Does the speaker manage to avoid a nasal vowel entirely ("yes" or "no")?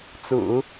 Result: yes